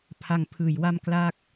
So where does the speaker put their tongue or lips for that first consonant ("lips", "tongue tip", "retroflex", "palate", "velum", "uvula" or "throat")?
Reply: lips